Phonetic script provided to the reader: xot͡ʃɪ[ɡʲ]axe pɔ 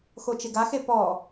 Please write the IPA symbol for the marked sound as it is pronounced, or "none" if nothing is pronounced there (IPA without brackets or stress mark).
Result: ɡ